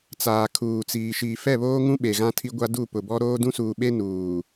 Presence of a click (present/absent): absent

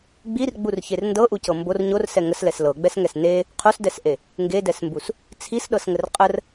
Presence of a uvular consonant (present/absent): present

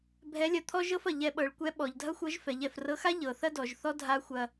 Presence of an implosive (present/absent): present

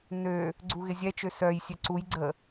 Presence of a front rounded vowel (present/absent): present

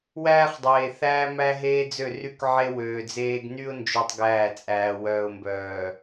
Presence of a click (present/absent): absent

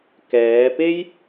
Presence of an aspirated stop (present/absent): absent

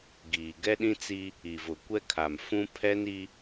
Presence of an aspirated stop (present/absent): present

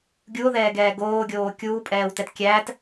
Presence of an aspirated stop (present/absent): absent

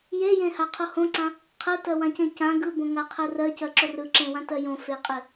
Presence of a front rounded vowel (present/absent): absent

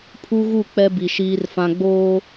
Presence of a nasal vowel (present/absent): present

